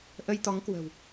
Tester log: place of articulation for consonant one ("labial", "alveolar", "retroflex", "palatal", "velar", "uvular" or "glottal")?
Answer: glottal